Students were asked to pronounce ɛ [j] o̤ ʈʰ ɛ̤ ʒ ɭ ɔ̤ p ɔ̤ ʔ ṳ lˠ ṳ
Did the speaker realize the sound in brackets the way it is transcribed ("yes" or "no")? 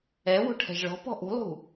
no